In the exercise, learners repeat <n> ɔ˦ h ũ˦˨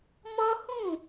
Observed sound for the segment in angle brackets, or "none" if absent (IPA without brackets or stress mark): m